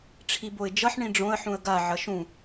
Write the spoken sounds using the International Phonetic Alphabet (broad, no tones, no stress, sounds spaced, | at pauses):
ʈ͡ʂʰ i b o ɪ̯ d͡ʒ ʌ ħ ɳ ĩ ɖ͡ʐ õ ə̯ ħ ũ ə̯ ɡ a ʕ ʌ ʃ ũ